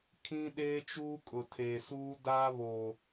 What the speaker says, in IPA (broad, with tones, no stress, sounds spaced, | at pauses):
kʰ ĩ˦ ɗ eː˦ t͡ʃ uː˦ kʼ ʊ˨ tʰ eː˨ s uː˦ d aː˦ β oː˨